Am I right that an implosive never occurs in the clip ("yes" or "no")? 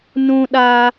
no